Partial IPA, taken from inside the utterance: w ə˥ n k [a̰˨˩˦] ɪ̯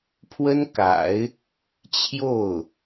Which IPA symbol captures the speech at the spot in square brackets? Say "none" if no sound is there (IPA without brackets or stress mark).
a̰˨˩˦